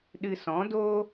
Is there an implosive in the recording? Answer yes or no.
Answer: yes